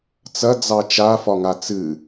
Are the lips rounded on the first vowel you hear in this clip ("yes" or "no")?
no